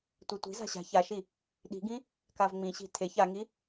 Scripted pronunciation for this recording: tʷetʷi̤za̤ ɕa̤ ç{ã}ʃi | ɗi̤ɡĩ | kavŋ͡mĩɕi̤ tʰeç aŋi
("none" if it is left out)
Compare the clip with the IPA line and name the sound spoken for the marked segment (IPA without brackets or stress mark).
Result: a